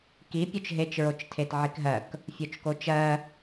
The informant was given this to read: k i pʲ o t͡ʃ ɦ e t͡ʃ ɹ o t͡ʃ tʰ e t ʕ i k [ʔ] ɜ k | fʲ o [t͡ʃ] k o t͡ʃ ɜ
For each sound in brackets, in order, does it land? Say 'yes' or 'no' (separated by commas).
no, yes